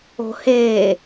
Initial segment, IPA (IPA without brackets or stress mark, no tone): o̤